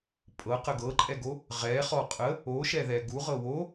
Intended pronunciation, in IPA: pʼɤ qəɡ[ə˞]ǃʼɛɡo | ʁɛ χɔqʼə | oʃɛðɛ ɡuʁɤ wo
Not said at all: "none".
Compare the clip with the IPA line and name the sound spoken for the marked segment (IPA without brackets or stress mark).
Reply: ɤ